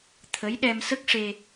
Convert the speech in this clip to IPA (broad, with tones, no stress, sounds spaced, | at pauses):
t̪ʰ ə˧˥ j ɗ ɛ˧ m s ə˦˥ k̚ ʂ e˧